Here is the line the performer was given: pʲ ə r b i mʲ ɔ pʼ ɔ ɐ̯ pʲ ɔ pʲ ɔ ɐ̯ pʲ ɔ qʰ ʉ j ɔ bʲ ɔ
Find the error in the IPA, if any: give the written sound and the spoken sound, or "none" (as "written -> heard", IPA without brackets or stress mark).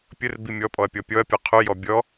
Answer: none